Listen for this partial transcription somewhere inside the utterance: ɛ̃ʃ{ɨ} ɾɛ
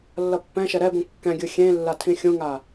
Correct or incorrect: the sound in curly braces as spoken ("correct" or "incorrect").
incorrect